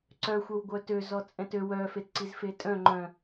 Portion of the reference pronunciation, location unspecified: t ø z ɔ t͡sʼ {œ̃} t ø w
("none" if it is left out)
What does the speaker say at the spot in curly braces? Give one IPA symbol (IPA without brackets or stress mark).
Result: ɛ̃